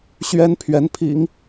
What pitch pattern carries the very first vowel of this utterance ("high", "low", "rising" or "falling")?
high